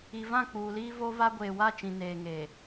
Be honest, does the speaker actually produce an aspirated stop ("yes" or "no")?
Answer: no